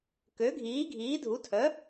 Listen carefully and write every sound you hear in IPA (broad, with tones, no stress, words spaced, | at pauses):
kø˩˥ ɡʱiː˩˥ɡʱiː˩˥dʱu˩˥tʰœ˩˥